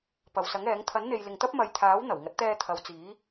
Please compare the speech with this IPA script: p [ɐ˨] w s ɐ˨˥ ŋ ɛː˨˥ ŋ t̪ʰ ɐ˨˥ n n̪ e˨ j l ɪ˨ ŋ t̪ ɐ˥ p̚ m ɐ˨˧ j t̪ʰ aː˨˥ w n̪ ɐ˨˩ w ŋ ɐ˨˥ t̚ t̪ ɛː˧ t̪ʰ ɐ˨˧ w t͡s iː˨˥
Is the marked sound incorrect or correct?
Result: correct